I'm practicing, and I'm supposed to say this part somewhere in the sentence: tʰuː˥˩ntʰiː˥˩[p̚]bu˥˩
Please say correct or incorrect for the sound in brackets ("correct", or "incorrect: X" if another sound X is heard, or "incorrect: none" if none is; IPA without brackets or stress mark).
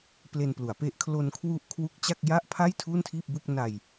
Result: correct